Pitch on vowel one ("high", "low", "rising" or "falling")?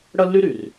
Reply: high